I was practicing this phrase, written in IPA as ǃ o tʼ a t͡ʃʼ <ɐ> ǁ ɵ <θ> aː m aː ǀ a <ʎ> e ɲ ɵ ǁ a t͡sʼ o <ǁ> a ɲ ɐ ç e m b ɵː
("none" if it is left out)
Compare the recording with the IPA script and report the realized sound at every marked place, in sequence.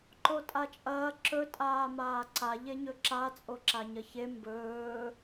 ɐː, tʼ, ʎ, ǁ

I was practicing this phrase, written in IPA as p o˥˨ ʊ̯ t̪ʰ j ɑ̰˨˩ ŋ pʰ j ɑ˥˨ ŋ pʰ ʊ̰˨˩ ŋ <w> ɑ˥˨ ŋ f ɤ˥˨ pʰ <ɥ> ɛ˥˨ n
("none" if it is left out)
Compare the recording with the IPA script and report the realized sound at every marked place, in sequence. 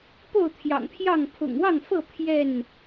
w, j

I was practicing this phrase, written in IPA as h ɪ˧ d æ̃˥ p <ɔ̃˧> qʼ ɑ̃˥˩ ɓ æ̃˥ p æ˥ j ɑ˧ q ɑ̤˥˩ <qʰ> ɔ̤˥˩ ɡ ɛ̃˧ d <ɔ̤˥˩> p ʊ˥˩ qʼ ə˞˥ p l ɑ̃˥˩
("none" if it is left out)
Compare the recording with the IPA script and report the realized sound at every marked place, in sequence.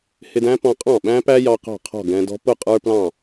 ɔ̃˧, qʰ, ɔ̤˥

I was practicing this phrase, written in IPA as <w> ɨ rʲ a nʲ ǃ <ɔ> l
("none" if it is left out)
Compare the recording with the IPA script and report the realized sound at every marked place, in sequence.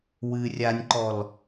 w, ɔ

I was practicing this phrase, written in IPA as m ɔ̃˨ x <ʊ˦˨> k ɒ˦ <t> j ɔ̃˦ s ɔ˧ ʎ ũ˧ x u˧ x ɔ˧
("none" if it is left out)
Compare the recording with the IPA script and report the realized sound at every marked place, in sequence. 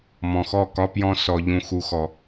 ɔ˦˨, p

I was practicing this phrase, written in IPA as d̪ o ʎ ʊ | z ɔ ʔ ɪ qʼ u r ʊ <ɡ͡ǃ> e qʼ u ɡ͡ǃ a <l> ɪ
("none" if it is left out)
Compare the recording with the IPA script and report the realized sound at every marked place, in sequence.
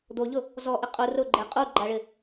ɡ͡ǃ, ɭ

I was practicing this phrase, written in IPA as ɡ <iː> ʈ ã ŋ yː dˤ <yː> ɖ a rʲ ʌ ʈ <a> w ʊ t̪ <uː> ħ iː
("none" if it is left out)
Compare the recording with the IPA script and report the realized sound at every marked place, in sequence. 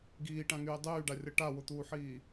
iː, yː, a, uː

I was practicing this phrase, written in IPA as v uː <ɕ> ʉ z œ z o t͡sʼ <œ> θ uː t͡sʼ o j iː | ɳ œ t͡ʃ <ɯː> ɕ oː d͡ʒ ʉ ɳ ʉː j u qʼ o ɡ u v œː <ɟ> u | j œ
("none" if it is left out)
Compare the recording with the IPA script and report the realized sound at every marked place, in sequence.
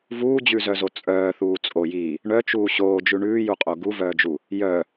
d͡ʑ, œː, uː, d͡ʒ

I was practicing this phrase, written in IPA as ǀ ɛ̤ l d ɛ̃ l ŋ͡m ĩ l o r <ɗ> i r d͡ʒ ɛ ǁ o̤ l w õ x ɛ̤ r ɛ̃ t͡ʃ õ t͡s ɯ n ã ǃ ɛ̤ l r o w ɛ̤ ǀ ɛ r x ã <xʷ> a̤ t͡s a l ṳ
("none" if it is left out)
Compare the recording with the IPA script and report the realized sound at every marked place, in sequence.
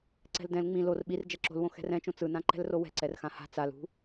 ɓ, h

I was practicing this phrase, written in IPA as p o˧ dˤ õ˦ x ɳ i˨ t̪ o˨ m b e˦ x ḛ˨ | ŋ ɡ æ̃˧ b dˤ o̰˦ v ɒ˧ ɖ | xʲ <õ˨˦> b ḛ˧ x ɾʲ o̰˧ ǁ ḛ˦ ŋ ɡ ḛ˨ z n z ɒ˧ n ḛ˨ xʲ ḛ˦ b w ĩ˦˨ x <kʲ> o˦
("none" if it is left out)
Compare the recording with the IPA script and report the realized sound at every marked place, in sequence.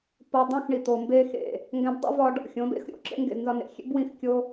õ˨˦, kʲ

